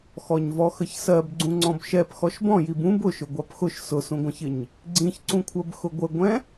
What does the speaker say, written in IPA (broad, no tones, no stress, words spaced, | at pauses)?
xɔɲvɔxəçsɜb ɡ͡ǀũŋ͡ǀɔ̃bʃɛp xɔʃbɔ̃jib ũb ʊʃʊ ɡʷɑpxʊʃ sʊsũɡʷə̃çɪɲ | ɡ͡ǀĩçǀũkʷʰɜb xʊɡʷəɡʷɛ̃